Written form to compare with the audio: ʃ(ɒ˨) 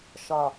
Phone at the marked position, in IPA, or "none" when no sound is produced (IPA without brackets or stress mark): ɒ˨